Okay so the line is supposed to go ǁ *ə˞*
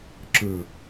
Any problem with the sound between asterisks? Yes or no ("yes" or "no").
no